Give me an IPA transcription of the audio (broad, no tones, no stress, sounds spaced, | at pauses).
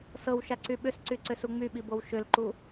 s ɤ w ʃ a ǀ y ɓ ʏ s ǀ y ǀ ʏ s u ŋ͡m y ɓ i b o w ʃ ʏ l ǃ u